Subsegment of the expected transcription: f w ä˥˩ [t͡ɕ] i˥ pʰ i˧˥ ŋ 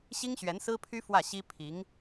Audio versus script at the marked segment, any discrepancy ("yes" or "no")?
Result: yes